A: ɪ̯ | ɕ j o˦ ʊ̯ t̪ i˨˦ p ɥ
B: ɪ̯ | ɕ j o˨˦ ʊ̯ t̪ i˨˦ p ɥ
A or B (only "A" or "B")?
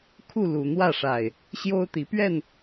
A